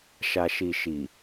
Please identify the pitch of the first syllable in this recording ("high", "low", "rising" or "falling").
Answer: low